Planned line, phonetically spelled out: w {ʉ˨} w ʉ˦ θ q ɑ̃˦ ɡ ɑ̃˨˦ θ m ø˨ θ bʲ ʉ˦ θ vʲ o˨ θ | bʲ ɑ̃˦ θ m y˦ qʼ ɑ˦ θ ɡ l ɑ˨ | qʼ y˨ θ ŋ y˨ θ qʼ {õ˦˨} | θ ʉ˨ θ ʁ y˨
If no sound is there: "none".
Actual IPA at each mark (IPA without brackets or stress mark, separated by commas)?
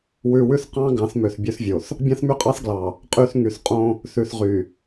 ʉ˨, õ˦